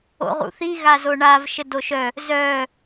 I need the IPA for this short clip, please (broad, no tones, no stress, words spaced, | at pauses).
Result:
o̰ʁṵθi ɣazoɳav ʃɘdoʃœ | zœ